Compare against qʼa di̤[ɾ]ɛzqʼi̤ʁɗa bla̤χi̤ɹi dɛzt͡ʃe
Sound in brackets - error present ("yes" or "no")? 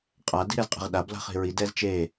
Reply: no